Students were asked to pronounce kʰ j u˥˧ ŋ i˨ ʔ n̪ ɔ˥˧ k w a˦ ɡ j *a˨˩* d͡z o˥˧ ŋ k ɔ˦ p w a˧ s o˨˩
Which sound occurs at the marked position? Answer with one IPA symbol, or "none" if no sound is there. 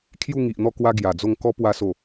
a˨˩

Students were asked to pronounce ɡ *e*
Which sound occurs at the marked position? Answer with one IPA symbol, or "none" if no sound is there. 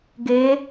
e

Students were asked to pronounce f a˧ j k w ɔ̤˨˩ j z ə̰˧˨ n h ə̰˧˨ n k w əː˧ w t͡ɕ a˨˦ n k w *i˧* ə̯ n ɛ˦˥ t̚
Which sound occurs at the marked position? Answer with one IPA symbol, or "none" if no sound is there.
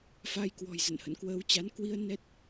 i˧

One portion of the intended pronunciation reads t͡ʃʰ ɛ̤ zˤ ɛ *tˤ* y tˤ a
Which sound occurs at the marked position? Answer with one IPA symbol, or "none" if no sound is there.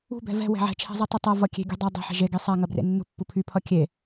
tˤ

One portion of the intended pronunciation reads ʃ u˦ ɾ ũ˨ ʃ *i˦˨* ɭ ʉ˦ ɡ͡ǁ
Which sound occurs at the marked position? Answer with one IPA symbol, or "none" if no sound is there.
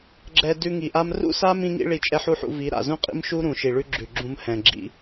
i˨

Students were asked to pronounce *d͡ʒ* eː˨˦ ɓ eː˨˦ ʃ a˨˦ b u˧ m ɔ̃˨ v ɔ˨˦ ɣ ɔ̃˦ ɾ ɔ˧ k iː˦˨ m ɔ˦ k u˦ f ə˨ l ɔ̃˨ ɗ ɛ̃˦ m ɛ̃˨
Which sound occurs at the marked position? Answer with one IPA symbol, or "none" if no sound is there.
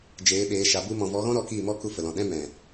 d͡ʒ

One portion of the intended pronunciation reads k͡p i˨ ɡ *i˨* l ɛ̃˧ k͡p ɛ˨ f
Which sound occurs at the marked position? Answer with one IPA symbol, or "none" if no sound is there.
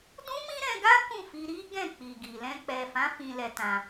i˨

